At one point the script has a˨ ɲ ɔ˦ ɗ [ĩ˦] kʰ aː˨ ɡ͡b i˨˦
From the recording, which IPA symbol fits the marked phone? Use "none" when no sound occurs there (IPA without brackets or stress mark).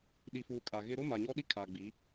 i˦